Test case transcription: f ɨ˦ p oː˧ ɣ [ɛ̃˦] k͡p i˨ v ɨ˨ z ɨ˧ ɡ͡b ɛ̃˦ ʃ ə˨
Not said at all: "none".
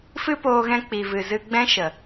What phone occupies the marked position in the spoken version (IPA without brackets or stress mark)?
ɛ̃˧